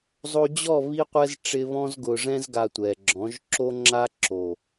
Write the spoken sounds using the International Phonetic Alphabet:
zˤ o˧ d͡ʑ ɔ˦˨ β i˧ qʷ ɛ˧ z ʈ͡ʂ ɪ˦ β ɔ̃˧ z ɡ ʊ˨ ʐ ɛ̃˧ z ɡ a˨ tʷ ɛ˨ ɡ͡ǁ ɔ̃˨˦ ʒ ǁ o˦ ŋ͡ǁ a˦ ǁ o˨

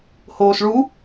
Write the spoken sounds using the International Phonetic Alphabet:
h oː s ɭ u

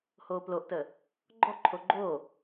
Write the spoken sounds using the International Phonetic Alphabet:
h oː p l o ʔ t ə | ɡ͡ǃ ɔ ǃʰ o ɡ͡ǃ o

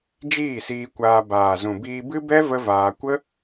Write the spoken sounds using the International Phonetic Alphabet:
d͡ʒ iː˦˨ s iː˧ kʷ aː˧ b aː˨ z ũ˨ b iː˧ b ɨ˦ b ɛ˦ v ə˦ v aː˧ kʷ ə˦

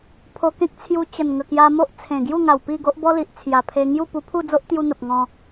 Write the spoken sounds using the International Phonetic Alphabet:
pʰ o˧ k ẽ˦ k̚ t͡sʰ j u˧ t͡ɕ ə˨˩ n ŋ ə˨˩ k j a˧ m o˦ ʔ t͡sʰ ẽ˨˩ ɡ j u˥˧ ŋ a˨˩ w p i˥˧ ɡ o˦ ʔ b ɔ˦ l i˨ ʔ t͡sʰ j a˨˩ pʰ e˧ ŋ j u˥˧ p u˧ pʰ u˥˧ d͡z o˦ ʔ t̪ j u˧ n̪ ə˨ p̚ ŋ ɔ̃˧

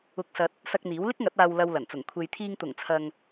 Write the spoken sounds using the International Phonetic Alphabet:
ʊ˨ k̚ s ɐ˨ t̚ | s ɐ˧ k̚ n̪ iː˨˥ w l ɪ˥ k̚ ŋ ɐ˨˥ t̚ aː˨ w l ɐ˨ w l ɐ˨˩ n t͡s ʊ˨˩ ŋ kʷʰ e˨ j t̪ʰ iː˧ ŋ t̪ ʊ˨˩ ŋ t͡sʰ ɐ˨ ŋ

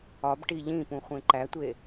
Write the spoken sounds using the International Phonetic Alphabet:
ɒ b ʈ i ʎ ĩ p ũ χʷ ẽ ǃ æ tʷ e

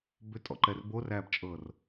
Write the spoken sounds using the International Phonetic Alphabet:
b ʏ tʼ ɔ̰ ǃ ɛ r b o r æː b t͡ʃʼ ɤː r

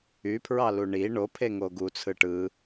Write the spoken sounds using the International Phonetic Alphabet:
y pʰ ɹ ɑ l u ɳ i ɳ o pʰ e ŋ o ɡ u t͡sʰ ɯ ʈ ɯ

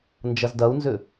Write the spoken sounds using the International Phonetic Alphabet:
n d͡ʒ ɐ z d ɐ u̯ n z ʏ

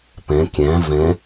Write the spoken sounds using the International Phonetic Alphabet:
p ɛ̃ kʲ æ̃ v ɛ̃

